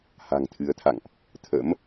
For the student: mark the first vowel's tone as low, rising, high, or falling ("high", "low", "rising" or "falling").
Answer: low